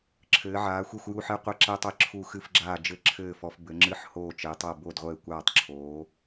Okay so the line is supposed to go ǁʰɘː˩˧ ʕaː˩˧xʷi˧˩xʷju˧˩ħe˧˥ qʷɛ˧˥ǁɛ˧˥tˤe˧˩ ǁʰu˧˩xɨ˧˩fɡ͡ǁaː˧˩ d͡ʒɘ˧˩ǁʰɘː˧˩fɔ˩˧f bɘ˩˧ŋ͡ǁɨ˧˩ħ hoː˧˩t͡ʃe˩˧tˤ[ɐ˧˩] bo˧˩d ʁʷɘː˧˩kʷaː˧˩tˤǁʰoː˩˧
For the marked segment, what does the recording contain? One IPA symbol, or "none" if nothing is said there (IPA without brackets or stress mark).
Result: ɐ˧˩